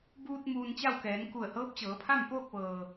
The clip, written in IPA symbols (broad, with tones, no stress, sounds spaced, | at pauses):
b uː˧ t̚ m uː˧ n t͡ɕ a˥˨ w k ɛː˩˧ n k u˧˩ ə̯ h ɤː˧˥ p̚ t͡ɕ ɤː˩˧ pʰ a˥˨ m p oː˥˨ k̚ ʋ ɤː˩